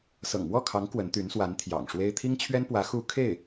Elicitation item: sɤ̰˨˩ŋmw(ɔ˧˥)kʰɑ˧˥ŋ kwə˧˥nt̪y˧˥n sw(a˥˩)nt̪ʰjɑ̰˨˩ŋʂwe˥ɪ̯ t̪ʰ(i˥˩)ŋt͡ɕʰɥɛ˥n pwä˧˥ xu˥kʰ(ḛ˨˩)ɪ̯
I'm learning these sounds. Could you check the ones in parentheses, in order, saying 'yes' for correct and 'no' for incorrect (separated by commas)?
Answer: no, no, no, no